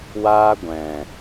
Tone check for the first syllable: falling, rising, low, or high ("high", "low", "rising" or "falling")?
high